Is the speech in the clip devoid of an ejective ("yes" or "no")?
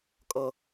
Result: no